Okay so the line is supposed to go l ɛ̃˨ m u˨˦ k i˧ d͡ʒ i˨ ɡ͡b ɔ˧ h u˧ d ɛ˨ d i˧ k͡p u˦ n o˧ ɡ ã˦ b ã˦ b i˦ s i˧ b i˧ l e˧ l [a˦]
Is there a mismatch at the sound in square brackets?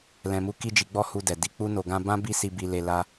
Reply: no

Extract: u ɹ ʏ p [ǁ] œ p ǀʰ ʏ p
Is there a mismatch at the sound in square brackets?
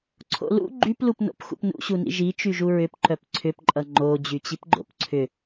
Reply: yes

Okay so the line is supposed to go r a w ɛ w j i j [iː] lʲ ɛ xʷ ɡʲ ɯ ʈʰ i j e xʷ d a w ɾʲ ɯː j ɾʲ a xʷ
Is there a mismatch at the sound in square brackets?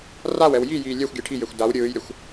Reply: no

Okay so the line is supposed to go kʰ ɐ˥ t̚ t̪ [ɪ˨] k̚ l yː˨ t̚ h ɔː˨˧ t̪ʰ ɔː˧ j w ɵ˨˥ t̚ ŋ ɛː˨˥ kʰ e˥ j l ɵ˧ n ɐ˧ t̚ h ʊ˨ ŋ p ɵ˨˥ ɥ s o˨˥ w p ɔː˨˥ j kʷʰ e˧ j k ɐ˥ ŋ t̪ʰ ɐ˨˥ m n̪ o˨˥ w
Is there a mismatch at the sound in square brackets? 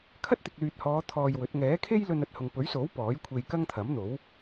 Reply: no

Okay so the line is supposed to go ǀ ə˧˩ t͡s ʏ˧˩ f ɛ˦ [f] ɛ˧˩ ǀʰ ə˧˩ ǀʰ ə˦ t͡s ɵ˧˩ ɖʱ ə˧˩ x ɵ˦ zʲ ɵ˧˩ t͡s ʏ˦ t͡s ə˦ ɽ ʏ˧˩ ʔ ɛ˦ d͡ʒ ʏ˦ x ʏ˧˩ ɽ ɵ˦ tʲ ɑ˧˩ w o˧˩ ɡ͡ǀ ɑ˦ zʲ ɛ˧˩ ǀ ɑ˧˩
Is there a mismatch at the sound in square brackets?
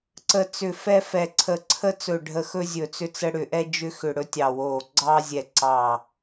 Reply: no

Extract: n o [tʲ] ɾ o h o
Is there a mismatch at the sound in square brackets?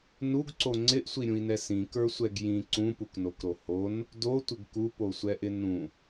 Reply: yes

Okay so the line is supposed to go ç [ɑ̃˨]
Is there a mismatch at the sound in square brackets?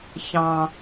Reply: no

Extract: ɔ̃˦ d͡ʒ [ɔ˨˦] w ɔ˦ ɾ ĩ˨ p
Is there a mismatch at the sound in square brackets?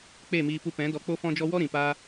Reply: yes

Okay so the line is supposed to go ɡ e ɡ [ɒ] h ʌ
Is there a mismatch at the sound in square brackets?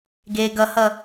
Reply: yes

